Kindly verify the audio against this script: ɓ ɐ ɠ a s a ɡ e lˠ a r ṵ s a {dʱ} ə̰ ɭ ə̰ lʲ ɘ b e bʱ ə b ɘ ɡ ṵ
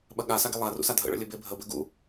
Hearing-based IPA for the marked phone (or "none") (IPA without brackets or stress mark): dʱ